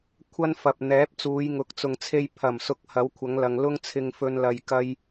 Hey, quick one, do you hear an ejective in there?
no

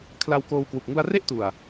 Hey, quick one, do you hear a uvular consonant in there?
no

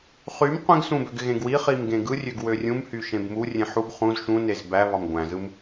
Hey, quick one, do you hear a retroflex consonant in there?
no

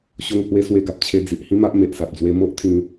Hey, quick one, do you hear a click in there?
no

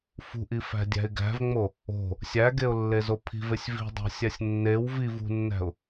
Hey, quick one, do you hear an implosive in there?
no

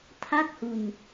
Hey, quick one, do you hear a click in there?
no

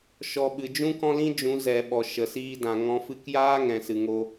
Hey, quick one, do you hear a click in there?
no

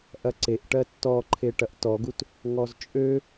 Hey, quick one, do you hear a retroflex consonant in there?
yes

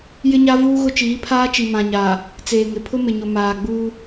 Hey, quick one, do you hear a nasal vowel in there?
yes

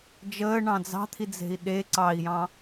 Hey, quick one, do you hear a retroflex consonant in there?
yes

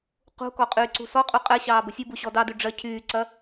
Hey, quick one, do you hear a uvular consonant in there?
yes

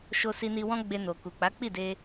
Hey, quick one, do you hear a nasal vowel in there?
yes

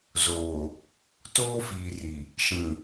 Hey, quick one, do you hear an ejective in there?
no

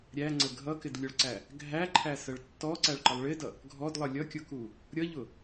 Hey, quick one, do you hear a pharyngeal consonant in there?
no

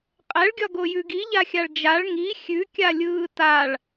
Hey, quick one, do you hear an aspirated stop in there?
no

